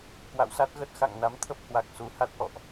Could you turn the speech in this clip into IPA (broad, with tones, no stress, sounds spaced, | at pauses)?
k w a̰˧˨ w s a˦˥ t̚ ɣ ə˦˥ t̚ x a̰˧˨ ŋ n a˨˦ m t̪ʰ ə˦˥ p̚ h w a˨˩ k̚ s u˨˩ h a˦˥ t̚ ʔ ɔ̰˧˨ ʔ